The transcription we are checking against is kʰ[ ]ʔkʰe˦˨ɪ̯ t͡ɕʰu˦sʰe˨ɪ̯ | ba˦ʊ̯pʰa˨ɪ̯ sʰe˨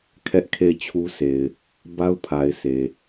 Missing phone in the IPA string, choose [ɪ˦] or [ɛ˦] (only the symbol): ɛ˦